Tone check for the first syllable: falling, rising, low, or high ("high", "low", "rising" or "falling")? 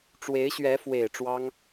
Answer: rising